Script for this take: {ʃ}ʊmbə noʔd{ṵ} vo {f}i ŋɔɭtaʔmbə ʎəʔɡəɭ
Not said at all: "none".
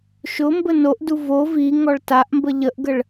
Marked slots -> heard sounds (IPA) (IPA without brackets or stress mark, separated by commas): ʃ, u, v